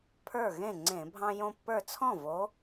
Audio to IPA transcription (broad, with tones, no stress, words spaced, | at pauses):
pʰə˞˥˩ ɣẽ˥˩ ŋ͡ǀẽ˧˩˧bʱɑ̃˦ jõ˦pːə˞˥˩ t͡sʰɔ̃˥˩vo˨˦